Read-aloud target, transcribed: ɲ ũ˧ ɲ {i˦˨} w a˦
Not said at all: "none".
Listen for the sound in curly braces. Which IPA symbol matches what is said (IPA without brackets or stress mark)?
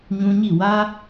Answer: i˦˨